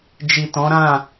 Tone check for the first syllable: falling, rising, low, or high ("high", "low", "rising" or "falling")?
low